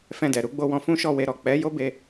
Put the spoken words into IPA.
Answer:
f ɛ̃˧ d ɛ˨ ɾ u˧ ɡ͡b o˧ w ɔ̃˧ f ũ˦ ʃ ɔ˦˨ w e˧ ɾ ɔ˨ k͡p ɛ˨˦ j o˦ b e˧

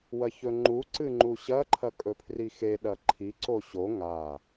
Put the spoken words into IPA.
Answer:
w ɐ ç ɵ ŋ͡ǃ u ǀ ɨ ŋ͡ǃ u ɕ ɐ ǃʰ ɐ kʼ ɵ pʰ r i x e ɗ ɐ ǃʰ i ǀ o ɕ o ŋ a

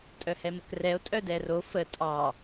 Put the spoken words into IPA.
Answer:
tʼ œ h ɛ m ə k r ɛ o̯ tʼ œ d ɛ r o f ə tʼ ɑ

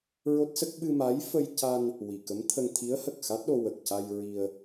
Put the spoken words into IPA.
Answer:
ɹ o˦˥ t̚ s ə˦˥ k̚ ɓ ɨ˧ m a˧˥ j f ə˧ j c a˧ n | w i˨˩˨ k ə˧˥ m t̪ʰ ə˧ ŋ t̪ʰ i˧˥ ə̯ h ə˨˩ k̚ x a˦˥ t̚ ɗ o˧ w ə˨˩ k̚ c a˧ j ɹ i˧ ə̯

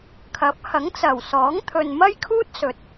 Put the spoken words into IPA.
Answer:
kʰ ɐ˨˥ p̚ h ɐ˨˥ ŋ t͡s ɐ˨˩ w s ɔː˨˥ ŋ t̪ʰ ɵ˨ n m ɐ˥ j kʰ uː˥ t̚ s ɵ˨ t̚

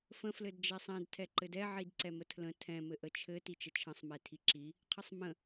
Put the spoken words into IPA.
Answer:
f ə̃ f l ɘ d d͡ʒ ɛ sˤ ɛ̃ d tʰ ɛ ǃ ɘ d ɛ ʕ i d ǀ ɛ m ə tʰ l ə̃ tʰ ɛ̃ m ɘ ʔ ə t͡ʃʰ ɘ t i t͡ʃ ə t͡ʃʰ ə̃ sˤ m ɛ tʰ i ǁ i | qʰ ə sˤ m ə̃

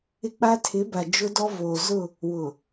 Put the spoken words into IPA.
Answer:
ɪ˦ k͡p a˦ tʰ ɪ˨˦ b a˨ d͡ʒ ʊ˦ d ɔ˦ v oː˨ z ʊ˦˨ | w ʊ˨

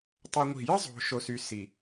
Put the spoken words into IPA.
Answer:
tˤ œ˦ ŋʷ i̤˦˨ j ə˦ zˤ o̤˨ ʃ o˦ s y˦ s i˨

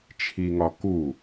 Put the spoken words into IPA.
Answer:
t͡ʃʰ i ŋ ɒ k u

